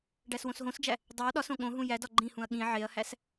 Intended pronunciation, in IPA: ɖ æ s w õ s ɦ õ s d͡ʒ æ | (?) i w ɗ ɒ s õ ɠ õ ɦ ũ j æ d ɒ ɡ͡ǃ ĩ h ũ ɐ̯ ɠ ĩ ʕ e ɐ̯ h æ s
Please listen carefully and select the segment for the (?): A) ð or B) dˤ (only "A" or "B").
B